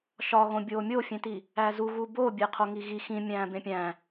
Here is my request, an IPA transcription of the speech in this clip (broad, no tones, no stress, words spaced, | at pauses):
ʃɒɣõ bʲoːmʲofʲẽti | æzuɣu bobʲe qʰoŋiɣi xĩ mʲæ̃ːbẽpʲæ̃